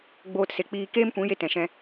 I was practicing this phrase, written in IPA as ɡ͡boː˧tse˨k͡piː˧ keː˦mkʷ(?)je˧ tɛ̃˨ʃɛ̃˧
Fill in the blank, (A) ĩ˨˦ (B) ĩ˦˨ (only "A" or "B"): A